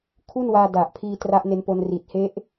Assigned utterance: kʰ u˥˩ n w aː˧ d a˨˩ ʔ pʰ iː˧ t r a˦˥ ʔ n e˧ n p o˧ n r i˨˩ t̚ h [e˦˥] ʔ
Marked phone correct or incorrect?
correct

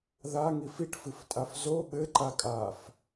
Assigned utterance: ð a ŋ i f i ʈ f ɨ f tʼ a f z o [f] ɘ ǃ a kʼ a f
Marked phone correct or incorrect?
incorrect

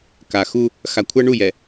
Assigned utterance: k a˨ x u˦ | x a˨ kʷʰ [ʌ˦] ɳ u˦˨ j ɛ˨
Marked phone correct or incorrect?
correct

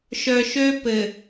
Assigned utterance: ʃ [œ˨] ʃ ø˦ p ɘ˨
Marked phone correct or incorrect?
correct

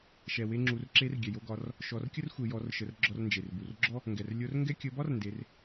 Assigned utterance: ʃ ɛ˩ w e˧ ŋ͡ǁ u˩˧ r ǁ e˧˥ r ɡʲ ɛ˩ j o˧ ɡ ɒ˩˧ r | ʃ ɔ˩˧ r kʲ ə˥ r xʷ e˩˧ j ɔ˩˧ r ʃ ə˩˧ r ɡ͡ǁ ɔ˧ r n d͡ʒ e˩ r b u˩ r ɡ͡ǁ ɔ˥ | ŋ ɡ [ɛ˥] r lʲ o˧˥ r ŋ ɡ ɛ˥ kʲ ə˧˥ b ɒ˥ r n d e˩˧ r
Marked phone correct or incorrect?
incorrect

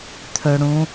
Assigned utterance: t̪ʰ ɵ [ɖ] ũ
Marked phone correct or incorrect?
incorrect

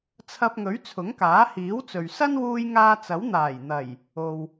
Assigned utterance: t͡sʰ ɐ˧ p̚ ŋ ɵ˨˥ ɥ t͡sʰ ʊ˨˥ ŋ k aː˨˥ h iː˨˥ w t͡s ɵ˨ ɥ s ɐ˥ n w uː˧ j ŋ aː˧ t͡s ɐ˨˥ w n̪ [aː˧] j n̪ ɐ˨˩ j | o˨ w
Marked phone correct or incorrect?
incorrect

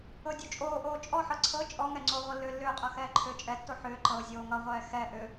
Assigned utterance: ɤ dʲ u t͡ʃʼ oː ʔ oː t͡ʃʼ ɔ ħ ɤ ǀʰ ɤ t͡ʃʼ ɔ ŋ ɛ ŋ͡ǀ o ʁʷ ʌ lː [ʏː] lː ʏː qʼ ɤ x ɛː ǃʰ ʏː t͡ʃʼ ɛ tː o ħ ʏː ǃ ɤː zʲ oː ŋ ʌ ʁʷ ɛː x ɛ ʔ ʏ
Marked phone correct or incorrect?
correct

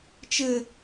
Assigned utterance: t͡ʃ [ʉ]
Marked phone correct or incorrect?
incorrect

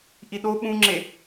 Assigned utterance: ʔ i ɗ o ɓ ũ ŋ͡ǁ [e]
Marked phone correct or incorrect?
correct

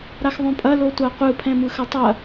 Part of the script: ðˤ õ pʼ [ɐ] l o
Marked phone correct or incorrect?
correct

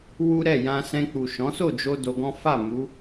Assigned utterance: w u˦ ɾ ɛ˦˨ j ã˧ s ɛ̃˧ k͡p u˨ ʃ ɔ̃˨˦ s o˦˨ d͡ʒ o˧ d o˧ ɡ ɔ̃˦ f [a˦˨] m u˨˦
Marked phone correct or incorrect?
correct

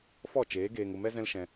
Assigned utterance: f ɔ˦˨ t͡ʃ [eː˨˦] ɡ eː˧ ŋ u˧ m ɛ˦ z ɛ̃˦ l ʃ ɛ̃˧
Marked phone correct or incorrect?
correct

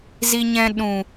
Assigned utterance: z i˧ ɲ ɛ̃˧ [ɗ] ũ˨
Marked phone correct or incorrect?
correct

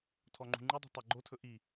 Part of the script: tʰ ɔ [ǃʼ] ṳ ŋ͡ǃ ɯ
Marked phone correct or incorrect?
incorrect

